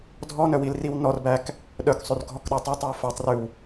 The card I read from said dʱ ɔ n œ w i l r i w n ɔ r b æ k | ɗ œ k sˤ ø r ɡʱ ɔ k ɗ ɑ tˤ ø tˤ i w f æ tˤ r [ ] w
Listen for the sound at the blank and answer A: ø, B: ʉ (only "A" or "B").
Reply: B